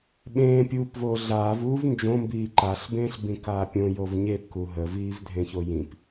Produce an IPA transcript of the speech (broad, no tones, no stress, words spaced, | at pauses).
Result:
ɓẽːpʲuːpvoː ɮaːvuːv nd͡ʒõmbiː ǃaɬbẽːɬ bĩkaːpʲõ jovɲep kuɦəviːv dʱẽçojĩp